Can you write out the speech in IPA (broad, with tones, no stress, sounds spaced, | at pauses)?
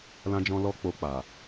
l ã˧ d͡ʒ ɔ̃˧ l ɔ˦ k͡p o˧ k͡p a˨